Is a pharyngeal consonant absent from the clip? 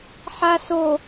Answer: no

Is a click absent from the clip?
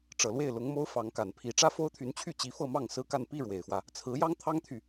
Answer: yes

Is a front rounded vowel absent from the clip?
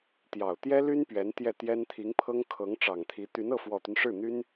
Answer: no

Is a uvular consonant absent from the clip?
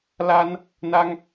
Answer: yes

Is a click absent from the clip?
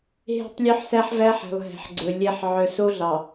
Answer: no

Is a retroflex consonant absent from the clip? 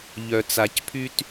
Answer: yes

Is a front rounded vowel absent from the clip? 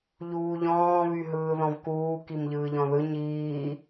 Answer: no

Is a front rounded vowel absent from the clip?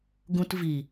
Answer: yes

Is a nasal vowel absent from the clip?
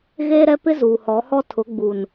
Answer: yes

